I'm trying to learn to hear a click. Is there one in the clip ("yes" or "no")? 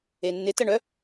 no